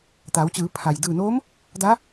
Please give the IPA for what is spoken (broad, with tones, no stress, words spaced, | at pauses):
t̪a˩˧wt͡ɕɯː˩˧pʰa˩j dɯː˧˩noː˧˥m | da˧˥